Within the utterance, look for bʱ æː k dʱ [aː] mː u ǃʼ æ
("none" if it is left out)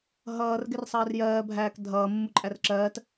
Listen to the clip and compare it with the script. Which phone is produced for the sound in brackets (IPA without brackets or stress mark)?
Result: ʌː